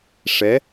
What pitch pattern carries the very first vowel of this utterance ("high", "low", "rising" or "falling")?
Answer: rising